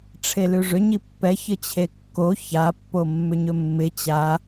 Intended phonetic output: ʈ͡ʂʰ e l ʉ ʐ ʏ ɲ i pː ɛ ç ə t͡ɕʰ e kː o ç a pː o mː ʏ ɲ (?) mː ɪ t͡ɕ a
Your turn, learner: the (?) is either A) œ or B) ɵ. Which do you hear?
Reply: B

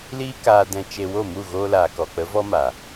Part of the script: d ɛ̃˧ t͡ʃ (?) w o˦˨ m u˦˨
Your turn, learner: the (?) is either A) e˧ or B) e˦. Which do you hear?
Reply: A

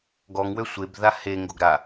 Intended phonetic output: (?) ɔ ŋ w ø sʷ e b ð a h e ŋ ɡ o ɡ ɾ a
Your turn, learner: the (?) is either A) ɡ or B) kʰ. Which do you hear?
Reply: A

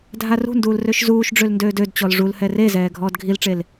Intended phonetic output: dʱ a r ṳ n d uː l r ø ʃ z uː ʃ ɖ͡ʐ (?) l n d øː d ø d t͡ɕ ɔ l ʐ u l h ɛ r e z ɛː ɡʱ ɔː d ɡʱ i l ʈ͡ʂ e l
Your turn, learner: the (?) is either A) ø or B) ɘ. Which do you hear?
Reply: A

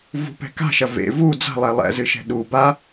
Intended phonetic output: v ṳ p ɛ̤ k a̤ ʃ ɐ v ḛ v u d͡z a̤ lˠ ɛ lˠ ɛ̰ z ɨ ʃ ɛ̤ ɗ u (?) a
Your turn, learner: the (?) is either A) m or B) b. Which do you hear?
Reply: B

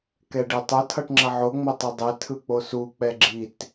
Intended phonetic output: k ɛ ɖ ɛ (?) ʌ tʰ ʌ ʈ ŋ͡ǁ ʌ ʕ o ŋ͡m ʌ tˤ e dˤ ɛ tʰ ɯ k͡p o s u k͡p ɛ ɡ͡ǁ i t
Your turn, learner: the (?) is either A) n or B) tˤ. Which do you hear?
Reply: B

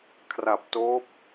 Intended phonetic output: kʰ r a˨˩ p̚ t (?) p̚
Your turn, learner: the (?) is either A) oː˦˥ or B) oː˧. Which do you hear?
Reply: A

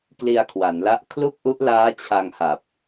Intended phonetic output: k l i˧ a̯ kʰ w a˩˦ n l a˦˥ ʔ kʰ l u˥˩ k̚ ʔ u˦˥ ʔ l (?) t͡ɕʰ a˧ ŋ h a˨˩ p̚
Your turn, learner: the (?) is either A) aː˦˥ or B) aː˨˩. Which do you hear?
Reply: A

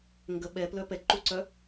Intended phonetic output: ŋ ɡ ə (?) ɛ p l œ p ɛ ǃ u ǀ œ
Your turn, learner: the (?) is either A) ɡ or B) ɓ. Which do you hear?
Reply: B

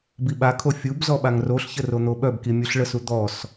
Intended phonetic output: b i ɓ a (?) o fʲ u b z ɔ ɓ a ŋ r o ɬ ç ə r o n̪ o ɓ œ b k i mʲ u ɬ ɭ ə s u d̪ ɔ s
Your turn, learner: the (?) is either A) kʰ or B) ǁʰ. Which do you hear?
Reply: A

